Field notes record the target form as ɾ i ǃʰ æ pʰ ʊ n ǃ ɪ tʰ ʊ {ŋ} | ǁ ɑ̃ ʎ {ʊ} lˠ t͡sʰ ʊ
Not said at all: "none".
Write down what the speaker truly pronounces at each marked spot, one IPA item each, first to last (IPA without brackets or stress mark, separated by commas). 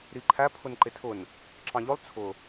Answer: n, ʊ